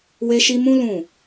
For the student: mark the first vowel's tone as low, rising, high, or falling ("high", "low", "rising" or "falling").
high